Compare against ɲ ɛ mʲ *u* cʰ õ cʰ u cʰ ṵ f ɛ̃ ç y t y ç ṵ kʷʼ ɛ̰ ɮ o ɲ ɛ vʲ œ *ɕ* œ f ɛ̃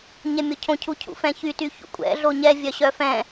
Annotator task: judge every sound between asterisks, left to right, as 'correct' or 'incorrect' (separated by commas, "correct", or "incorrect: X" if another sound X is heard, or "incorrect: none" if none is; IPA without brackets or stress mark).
incorrect: o, correct